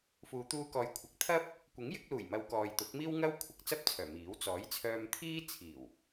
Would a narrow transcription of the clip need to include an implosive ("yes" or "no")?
no